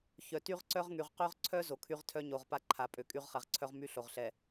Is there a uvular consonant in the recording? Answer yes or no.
yes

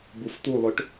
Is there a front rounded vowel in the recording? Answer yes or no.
yes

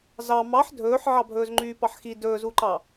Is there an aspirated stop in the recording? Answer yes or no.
no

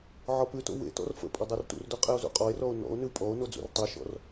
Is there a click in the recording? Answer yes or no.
no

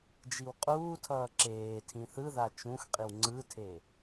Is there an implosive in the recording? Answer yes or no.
no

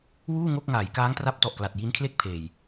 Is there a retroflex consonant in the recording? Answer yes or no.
no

